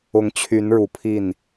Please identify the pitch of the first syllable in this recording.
rising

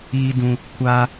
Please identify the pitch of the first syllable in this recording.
high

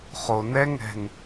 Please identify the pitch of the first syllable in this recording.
low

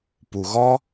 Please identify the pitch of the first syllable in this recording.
low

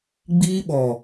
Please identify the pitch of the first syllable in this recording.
high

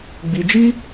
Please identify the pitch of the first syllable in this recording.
high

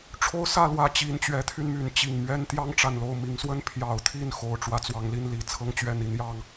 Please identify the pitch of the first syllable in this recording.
high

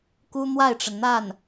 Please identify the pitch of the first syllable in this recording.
high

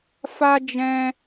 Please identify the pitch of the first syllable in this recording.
high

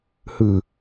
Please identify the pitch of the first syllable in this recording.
low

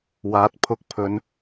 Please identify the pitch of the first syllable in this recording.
rising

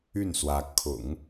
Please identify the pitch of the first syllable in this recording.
falling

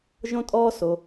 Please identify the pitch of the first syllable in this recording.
high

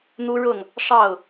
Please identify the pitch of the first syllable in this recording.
high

